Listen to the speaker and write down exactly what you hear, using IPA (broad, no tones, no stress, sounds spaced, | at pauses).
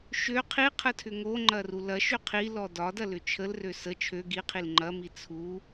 ʃ ø qʰ i qʰ ə tʰ ʏ ŋ o ŋ͡ǃ ɐ r u l ɐ ʃ ø qʰ i l ɔ d ɒ d ɐ l ʏ t͡ʃʰ ə l r ø s ə t͡ʃʰ ø ɡ i qʰ i l ŋ͡ǃ ɐ m i t͡sʰ u